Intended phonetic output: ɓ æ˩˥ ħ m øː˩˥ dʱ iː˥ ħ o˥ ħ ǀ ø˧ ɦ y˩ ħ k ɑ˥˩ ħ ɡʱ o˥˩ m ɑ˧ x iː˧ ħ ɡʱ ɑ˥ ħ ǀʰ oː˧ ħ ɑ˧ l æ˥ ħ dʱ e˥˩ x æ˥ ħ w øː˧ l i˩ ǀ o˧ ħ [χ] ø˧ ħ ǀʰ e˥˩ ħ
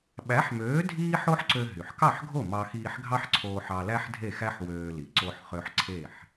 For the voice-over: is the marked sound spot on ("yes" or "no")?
yes